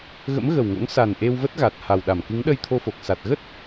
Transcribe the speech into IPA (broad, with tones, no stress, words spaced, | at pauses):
ɣə̰˧˥mɣə˨˩wŋo̰˧˥ŋ sa˨˩n ʔe˧wvə˦˥t̚ɣa˨˩t̚ ha˨˩wɗa˧˩m kɨ˨˦ŋɗə˧jt̪ʰo˧fo˨˩k̚ sa˨˩t̚ɣə˦˥t̚